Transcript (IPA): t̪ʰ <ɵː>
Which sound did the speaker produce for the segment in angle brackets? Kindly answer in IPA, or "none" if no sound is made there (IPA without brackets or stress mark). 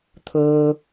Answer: ɵː